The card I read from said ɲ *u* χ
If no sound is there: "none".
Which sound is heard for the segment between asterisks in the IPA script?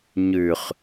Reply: ʉ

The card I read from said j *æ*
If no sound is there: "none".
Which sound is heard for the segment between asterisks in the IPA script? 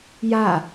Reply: a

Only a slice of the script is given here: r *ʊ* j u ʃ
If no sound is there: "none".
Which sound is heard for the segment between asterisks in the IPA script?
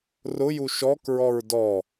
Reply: ʊ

